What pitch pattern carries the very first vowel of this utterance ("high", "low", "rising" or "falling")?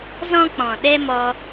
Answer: high